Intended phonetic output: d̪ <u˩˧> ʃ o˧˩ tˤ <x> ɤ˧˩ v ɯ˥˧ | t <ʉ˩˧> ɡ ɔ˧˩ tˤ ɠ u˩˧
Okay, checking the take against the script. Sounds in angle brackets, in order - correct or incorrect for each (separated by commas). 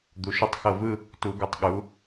correct, correct, incorrect